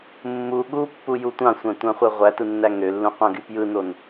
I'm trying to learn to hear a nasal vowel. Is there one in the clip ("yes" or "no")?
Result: yes